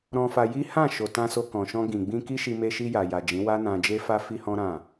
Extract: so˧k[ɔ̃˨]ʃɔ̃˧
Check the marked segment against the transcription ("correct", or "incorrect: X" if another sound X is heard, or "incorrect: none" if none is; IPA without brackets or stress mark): correct